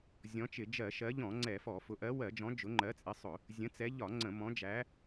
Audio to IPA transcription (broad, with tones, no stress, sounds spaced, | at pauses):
zʲ ɔ̃˨˦ t͡ʃ ɪ˧˩˧ d͡ʒ ɜ˧˩˧ ʃ ɜ˨˦ ʎ ɔ̃˧˩˧ ŋ͡ǀ ɛ˧˩˧ f ɔ˧˩˧ f ʊ˨˦ ʔ ɜ˨˦ w ɜ˧˩˧ d͡ʒ ɔ̃˨˦ d͡ʒ ʊ˨˦ ŋ͡ǃ ɜ˨˦ t͡sʼ ɪ˨˦ sˤ ʊ˧˩˧ | zʲ ə̃˨˦ t͡s ɛ˨˦ ʎ ɒ˧˩˧ ŋ͡ǀ ə̃˧˩˧ m ɔ̃˨˦ d͡ʒ æ˨˦